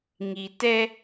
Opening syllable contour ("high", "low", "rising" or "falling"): low